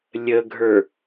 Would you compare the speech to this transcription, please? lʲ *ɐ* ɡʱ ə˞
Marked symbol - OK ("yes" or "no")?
no